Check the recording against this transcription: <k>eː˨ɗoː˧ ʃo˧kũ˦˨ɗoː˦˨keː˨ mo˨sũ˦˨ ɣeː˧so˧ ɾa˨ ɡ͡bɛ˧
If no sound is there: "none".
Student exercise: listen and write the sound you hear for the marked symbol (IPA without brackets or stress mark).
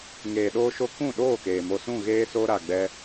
ŋ